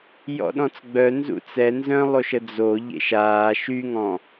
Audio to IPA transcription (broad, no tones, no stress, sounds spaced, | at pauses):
j ɔ̰ ɗ ɔ̃ t͡s ɡ͡b œ n z ṵ t͡s ɛ n z œ̃ lˠ o ʃ ə d͡z o ʎ ḛ ʃ aː ʃ y ŋ ɔ̃